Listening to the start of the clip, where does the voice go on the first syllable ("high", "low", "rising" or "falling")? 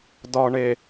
low